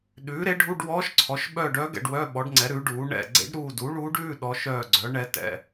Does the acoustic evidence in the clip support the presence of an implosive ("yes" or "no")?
yes